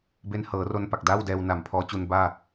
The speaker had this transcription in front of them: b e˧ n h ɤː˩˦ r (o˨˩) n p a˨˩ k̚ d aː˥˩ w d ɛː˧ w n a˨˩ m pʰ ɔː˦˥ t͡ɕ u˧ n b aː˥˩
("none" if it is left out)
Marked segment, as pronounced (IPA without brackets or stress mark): o˧